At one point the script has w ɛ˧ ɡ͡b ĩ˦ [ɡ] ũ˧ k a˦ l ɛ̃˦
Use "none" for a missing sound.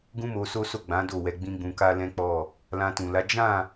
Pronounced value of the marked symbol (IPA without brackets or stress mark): ɡ͡b